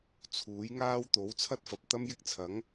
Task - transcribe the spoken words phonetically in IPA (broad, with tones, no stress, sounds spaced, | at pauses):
t͡sʰ uː˨˥ j ŋ aː˥ w t̪ o˨˥ w t͡sʰ ɐ˥ t̚ f ɐ˨ p̚ t̪ ɐ˥ m j ɪ˥ k̚ t͡sʰ ɐ˨˥ ŋ